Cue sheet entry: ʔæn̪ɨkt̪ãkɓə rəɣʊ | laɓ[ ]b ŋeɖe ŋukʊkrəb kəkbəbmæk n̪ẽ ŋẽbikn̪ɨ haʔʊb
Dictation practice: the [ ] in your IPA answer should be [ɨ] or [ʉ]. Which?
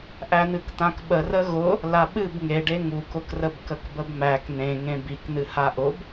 ɨ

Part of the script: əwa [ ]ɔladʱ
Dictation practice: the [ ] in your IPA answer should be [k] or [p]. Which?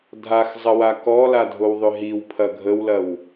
k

